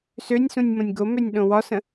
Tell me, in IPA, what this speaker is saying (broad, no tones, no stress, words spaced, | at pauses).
sønʲsũnʲ mõnʲɡomønʲ ɗõwɒsə̃